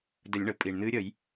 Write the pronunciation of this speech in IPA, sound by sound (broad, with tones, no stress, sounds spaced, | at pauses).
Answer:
d ə˨˩˦ lʲ ɳ ə˩ pʼ iː˩ ɳ n̪ ɨː˧˥ ɾʲ ə˨˩˦ j